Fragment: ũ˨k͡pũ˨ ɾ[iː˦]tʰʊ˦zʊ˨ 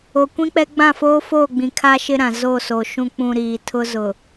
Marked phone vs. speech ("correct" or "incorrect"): incorrect